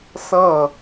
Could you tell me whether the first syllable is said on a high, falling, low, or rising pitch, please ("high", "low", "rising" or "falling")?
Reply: falling